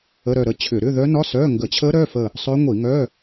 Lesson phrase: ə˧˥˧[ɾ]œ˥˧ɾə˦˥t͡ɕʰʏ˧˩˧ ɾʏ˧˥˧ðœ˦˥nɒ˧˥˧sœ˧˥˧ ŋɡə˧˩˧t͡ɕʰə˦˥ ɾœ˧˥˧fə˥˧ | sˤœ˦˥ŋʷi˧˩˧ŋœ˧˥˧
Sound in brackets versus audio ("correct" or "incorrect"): correct